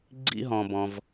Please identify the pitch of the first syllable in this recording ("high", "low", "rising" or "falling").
high